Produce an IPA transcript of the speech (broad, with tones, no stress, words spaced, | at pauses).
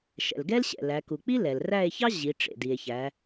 ʃɛ̰˩lɡɛ˥lɕɛ̰˩ læ˩˧ku˩ k͡pi˥lɛ˩l ræ˦˨e̯çɑ˥ ʑi˩˧ ʈ͡ʂḛ˩di˩e̯ çæ˩˧